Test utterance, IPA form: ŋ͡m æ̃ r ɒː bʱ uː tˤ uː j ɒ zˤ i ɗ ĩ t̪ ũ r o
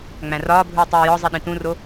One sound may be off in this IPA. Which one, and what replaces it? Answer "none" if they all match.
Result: none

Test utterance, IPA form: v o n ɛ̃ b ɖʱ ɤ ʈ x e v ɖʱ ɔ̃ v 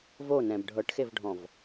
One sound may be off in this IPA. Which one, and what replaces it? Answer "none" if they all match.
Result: none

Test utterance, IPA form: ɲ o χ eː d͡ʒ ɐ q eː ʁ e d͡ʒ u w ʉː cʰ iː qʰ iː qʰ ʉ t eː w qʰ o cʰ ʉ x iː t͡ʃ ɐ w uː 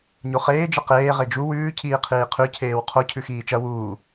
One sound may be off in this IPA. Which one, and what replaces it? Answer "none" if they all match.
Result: t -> cʰ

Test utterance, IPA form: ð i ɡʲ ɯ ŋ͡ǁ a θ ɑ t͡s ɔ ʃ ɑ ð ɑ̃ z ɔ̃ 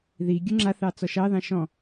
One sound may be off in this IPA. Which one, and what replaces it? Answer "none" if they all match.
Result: z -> ʃ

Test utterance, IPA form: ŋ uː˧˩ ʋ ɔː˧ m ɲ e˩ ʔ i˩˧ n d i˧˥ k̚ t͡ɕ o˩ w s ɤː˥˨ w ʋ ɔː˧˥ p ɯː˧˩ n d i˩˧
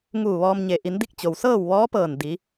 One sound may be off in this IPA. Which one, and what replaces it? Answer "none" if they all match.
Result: ɯː˧˩ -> ɤː˧˩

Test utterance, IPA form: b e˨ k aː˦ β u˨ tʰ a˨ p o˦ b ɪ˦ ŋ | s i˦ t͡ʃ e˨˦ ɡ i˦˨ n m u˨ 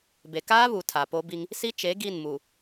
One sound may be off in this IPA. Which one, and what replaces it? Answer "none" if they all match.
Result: ɪ˦ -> i˦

